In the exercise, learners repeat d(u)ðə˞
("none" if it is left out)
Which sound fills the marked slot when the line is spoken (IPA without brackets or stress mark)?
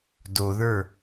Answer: o